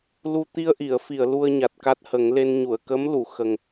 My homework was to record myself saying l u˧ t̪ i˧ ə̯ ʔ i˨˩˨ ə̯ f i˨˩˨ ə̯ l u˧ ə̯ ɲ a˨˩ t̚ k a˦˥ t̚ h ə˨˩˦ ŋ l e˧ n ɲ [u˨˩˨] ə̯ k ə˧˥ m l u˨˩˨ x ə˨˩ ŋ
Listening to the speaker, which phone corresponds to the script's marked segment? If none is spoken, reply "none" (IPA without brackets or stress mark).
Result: u˨˩˨